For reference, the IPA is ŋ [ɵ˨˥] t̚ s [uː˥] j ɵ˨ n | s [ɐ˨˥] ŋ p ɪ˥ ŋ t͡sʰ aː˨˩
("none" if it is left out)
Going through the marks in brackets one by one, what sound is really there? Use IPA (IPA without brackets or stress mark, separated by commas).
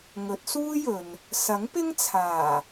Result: ɵ˨˥, uː˥, ɐ˨˥